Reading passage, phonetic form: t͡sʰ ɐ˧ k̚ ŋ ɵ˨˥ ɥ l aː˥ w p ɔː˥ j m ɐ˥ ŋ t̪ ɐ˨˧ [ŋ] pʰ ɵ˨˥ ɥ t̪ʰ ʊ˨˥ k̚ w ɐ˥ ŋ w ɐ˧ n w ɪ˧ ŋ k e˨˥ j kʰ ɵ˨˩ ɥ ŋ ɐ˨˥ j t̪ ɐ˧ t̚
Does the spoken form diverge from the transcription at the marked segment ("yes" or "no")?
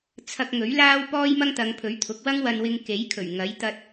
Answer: no